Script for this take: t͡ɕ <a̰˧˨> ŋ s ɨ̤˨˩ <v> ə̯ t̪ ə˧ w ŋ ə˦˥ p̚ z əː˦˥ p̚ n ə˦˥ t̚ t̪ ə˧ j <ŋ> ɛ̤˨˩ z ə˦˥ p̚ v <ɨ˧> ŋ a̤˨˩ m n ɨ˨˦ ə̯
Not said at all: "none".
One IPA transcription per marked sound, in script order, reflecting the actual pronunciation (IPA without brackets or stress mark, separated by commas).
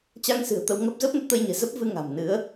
a˧, none, ɲ, ɨ˧